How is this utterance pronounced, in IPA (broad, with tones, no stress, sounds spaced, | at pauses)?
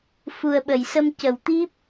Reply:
f u˨˩ ə̯ ɓ ə˨˩˨ j s ə˧ m c ə˨˩˨ w t̪ i˦˥ p̚